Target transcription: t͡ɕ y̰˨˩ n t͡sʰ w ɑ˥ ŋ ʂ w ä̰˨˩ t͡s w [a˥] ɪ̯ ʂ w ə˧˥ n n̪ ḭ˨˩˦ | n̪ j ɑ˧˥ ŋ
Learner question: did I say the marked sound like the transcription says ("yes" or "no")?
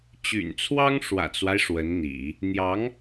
no